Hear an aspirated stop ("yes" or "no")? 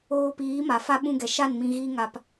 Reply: no